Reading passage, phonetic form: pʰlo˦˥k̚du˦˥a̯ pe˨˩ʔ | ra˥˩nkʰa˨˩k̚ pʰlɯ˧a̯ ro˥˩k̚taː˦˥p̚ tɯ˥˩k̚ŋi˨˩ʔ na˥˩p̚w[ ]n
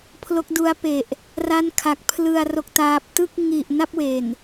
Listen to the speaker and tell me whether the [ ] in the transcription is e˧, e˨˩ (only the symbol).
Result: e˨˩